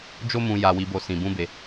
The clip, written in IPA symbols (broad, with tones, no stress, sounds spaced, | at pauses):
d͡ʒ o˦ m ũ˧ j a˧ w i˧ b o˧ s ĩ˧ b ũ˦ b e˧